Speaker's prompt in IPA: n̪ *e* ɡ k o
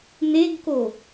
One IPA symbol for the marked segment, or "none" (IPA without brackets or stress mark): e